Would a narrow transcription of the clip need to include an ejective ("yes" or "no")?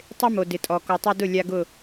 yes